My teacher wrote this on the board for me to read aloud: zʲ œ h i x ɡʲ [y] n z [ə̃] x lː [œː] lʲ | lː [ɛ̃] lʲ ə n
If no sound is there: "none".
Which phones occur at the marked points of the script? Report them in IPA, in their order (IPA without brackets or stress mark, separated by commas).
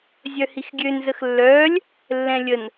ø, ə, œː, ɛ̃